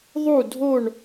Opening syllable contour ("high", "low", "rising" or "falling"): falling